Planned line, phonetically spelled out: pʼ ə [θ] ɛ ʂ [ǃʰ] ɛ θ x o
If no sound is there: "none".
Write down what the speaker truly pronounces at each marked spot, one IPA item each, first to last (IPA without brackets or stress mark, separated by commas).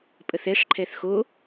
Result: θ, ǃʰ